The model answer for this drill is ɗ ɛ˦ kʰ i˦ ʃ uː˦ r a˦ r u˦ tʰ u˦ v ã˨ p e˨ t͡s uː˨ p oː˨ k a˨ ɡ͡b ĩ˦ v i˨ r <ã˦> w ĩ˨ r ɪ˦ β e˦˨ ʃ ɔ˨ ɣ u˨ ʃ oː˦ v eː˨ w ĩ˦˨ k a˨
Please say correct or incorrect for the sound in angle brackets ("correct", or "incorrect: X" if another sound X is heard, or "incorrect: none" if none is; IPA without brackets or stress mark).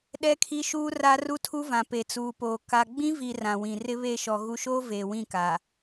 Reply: incorrect: ã˨